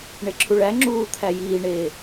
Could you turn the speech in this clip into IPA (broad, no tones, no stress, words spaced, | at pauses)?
ɳeǁʰuɭæŋ͡ǁuː t̪ʰæjiːɳeː